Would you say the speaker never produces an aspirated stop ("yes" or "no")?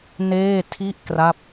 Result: no